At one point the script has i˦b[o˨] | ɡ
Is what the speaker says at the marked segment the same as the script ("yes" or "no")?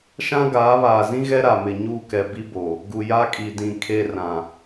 yes